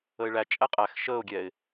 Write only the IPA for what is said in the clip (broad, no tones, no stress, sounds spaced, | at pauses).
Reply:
ə ɪ̯ ɭ æ t͡ʃʼ æ qʼ æ x ʃ əː ʊ̯ ɡʲ ɛ ɪ̯